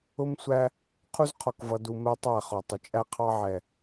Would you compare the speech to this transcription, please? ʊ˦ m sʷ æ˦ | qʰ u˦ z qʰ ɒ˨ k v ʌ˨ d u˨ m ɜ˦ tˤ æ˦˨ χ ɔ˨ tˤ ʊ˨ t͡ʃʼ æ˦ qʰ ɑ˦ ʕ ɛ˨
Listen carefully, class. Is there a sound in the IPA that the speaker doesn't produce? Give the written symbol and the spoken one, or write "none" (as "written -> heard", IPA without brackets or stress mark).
none